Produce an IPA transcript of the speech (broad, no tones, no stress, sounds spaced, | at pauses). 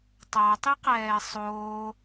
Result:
tˤ a tˤ i q ɛː sˤ oː